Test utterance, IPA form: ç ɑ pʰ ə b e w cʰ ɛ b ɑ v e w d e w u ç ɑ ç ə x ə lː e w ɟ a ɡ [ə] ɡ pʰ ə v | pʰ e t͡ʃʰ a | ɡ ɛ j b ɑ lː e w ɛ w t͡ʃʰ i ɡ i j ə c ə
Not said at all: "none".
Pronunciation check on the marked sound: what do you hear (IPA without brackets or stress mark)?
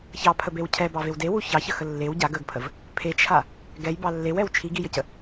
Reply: ə